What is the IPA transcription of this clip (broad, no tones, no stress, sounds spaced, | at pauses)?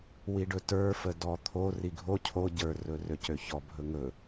w i ɖ ɵ t ə˞ f ə d ɔ t̪ʰ o r i ɡʱ o cʰ o ɟ ə˞ r ɵ r ø c ø ç ɔ bʱ ɵ ŋ ɵ